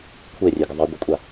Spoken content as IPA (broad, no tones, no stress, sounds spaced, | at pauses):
kʷʰ e rʲ e ɡ ə ðˤ i ɡʷ ə kʷʼ a